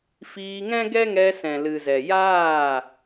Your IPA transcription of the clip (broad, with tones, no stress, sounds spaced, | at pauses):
f iː˧ ŋ ɛ̃˦ ɡ ɛ˦ ŋ ɛ˧ s ɛ̃˨ l ɨ˨ z ɛ˨ j aː˦˨